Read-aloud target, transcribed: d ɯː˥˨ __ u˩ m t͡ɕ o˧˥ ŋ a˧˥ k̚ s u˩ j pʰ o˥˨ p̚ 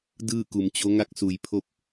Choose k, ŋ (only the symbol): k